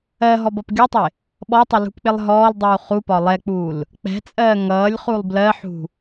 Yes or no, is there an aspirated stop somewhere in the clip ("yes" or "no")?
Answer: no